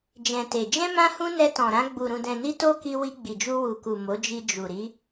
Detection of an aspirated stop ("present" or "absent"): absent